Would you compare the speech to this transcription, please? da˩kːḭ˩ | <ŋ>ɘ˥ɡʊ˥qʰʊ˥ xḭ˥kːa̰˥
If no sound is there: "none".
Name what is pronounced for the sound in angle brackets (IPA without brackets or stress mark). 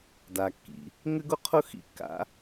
ŋ